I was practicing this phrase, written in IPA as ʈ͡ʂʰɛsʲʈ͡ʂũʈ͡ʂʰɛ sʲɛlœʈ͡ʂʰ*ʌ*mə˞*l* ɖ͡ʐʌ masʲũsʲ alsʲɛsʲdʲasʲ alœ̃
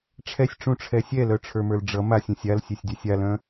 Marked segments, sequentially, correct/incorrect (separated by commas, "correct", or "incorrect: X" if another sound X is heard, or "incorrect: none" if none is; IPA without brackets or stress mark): incorrect: ə˞, correct